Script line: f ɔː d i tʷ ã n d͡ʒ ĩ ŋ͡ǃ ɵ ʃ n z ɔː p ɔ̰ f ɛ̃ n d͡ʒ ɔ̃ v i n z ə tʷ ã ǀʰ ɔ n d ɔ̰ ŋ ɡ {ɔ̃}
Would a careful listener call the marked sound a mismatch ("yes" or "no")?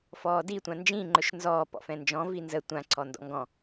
no